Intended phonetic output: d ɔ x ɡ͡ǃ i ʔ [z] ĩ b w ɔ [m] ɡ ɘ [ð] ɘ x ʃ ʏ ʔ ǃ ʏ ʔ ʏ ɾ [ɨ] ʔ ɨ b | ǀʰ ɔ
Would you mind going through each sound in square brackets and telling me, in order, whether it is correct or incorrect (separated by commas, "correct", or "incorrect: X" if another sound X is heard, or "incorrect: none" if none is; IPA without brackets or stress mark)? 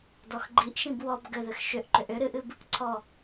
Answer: incorrect: ʃ, incorrect: b, correct, correct